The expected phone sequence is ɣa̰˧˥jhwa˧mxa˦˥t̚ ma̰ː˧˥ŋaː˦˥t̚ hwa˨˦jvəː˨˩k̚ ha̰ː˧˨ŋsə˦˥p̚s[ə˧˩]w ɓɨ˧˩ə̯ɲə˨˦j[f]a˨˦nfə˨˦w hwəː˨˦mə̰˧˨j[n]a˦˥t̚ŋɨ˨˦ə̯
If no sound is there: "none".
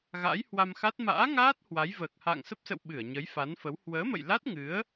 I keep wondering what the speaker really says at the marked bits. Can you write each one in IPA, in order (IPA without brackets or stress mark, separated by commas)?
ə̰˧˨, f, l